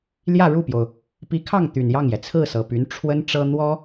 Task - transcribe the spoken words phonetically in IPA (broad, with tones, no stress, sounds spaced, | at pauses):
l j ä˥˧ ɻ u˥˩ p j o˩ ʊ̯ | p i˧˥ kʰ ɑ˥˩ ŋ t̪ y˨˩ n j ɑ˥˩ ŋ j ɛ˩ t͡sʰ ɹ̩˥˩ s ɤ˨˩ p y˧˥ n ʈ͡ʂʰ w ə˥ n ʈ͡ʂ ɤ˥ n̪ w ɔ˥